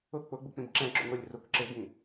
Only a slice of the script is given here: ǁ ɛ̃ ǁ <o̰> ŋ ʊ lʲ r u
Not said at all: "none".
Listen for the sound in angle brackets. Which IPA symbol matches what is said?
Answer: o̰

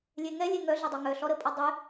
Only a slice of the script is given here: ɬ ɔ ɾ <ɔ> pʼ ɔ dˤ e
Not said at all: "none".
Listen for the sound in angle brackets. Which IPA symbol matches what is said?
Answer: ə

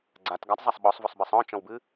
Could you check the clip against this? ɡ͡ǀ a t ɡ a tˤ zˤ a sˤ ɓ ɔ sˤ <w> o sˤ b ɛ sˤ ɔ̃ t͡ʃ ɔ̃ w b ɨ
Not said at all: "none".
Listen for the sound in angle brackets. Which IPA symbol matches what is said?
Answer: v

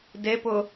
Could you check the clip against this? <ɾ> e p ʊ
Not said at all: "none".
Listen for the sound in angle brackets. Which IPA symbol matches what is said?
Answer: d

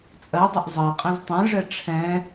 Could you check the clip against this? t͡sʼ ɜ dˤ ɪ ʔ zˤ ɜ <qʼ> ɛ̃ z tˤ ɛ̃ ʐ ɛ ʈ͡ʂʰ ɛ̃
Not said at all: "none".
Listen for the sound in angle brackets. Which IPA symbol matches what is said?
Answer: qʼ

